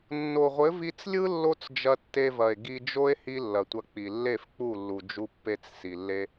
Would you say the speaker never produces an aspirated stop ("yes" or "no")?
yes